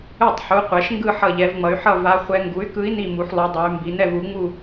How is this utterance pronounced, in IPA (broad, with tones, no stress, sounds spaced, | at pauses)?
ɯ˧˩ tˤ ħ u˩˧ qʷ ɛ˩˧ ʃ ŋ ɡ ɯ˥˨ ħ ʌ˧˩ ʎ ɛ˩˧ v ŋ͡m ʌ˩˧ y̯ ħ ʌ˥˨ v a˧˥ χʷ ɛ˧˥ ŋ ɡ u˩˥ y̯ k ɯ˧˥ i̯ n i˥˨ m u˩˧ ħ lˠ u˩˧ dˤ ɛ˩˧ y̯ m b i˩˧ n ɛ˥˨ v u˩˥ ŋ͡m u˥˨